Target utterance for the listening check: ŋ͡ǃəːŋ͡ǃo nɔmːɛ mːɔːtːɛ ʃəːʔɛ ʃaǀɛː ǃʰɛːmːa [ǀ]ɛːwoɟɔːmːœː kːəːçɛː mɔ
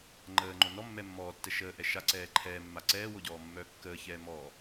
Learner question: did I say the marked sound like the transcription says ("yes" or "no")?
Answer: yes